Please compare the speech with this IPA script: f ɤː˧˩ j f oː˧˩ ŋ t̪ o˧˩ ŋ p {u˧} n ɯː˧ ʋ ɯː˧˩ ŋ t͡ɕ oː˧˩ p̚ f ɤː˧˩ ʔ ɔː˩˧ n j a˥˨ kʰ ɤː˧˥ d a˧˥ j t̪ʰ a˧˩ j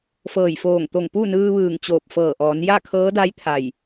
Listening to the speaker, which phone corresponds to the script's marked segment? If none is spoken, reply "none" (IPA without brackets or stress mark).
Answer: u˥˨